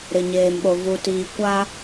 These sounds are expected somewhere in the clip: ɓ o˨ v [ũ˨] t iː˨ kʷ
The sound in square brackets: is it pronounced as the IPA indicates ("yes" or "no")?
no